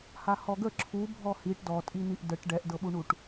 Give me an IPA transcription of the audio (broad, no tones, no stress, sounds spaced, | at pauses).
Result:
h a h ɔ ɡ ə ǁʰ u bʱ ɔ h i ʈ d ɔ tʼ i n̪ i ʔ d ə ʈ ɖ ɛ ʔ d ɤ ɓ u ɳ u ʈ